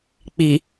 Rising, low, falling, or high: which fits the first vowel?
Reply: low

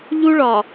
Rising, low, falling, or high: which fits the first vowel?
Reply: high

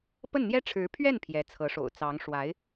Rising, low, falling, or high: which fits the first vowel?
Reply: falling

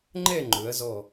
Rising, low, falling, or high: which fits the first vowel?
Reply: falling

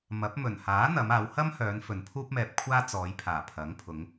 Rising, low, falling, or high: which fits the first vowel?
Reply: rising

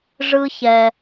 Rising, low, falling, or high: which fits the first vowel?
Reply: high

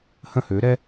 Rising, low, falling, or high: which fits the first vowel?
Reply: falling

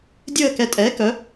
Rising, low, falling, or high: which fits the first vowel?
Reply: falling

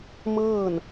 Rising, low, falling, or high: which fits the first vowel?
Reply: falling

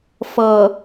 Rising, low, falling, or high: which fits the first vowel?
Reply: low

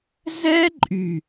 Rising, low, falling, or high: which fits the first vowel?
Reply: high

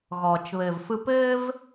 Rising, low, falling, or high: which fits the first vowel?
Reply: low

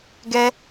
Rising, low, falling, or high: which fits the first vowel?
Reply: high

